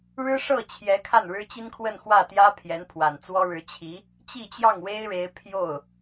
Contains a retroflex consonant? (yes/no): yes